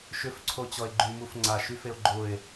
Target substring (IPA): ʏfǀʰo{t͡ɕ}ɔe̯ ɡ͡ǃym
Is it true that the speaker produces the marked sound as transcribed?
yes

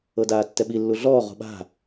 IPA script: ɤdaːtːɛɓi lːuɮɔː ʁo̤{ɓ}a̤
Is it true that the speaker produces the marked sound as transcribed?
yes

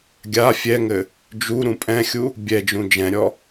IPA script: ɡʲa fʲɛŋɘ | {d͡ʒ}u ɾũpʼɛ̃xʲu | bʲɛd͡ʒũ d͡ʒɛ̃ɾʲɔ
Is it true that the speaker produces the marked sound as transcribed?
yes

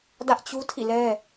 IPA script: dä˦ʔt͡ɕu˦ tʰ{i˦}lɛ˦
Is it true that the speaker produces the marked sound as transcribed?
no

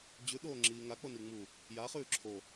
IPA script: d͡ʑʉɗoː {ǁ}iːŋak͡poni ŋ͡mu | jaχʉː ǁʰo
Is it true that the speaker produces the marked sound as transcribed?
no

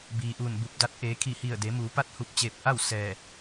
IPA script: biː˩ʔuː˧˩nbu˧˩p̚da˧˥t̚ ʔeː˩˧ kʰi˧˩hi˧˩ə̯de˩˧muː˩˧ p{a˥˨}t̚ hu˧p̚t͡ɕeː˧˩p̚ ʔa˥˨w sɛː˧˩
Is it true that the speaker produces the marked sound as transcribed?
yes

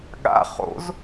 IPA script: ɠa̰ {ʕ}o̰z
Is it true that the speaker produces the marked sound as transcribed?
no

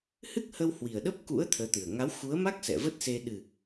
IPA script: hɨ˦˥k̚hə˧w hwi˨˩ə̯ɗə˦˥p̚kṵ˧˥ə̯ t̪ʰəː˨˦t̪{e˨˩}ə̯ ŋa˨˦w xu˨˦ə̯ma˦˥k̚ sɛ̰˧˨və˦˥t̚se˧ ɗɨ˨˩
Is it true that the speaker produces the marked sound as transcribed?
no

